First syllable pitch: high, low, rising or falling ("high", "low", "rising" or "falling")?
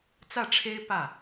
falling